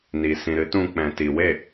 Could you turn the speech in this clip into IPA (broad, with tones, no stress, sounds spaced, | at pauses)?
n i˨ s ĩ˨ ɾ ɨ˨˦ t ũ˧ k͡p ɛ̃˨ t i˨ w e˦˨